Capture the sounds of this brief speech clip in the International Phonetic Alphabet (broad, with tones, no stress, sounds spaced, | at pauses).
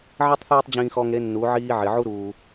ʕ i˦ tˤ θ eː˦ tˤ d͡ʑ ĩː˧ x ɔ˧ ŋ ɾ e˨˦ nː u˨˦ ʕ iː˦ ʕ ɪ˨ ʕ u˦ ɾ uː˧